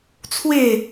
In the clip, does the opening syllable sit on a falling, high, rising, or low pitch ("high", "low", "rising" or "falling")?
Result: falling